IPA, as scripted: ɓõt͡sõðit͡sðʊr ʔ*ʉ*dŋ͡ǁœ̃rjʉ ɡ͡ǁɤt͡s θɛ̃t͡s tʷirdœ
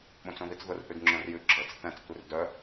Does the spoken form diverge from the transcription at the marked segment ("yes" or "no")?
no